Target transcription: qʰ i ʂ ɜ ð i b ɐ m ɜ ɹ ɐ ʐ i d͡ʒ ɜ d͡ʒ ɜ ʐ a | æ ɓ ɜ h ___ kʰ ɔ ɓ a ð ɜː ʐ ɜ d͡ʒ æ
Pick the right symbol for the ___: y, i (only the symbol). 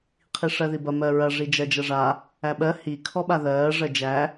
i